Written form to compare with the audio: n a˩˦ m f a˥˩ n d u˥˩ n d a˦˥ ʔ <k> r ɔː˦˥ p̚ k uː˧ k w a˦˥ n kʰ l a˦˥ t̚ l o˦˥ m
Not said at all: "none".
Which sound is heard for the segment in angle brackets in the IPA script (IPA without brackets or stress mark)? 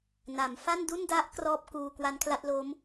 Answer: k